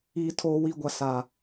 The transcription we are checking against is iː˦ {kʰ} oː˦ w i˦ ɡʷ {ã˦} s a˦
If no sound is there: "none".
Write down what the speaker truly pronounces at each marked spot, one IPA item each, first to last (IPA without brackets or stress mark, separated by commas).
tʰ, a˦